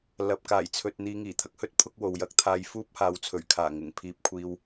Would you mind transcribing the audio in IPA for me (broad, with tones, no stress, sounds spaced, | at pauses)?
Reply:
l ɐ˨ p̚ k aː˨˩ j t͡sʰ ɵ˨ t̚ n̪ iː˨ ŋ iː˨˩ t̪ʰ ɐ˨ k̚ h ɵ˥ t̚ pʰ ʊ˥ k̚ w o˨ w j ɐ˧ k̚ t̪ʰ aː˧ j f uː˥ p̚ h aː˨ w t͡sʰ ɵ˨˩ ɥ kʰ aː˨˩ ŋ ɪ˨˩ ŋ pʰ iː˧ p̚ kʷʰ iː˧ w